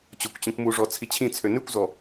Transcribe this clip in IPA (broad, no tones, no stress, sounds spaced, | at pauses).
t͡ɕ o kʷ t͡ɕ ĩ kʷ m u ʐ ɔ t͡sʰ i t͡ɕʰ ĩ t͡sʰ ø n ʉ kʷ z ɔ